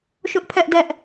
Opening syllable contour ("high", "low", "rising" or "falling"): high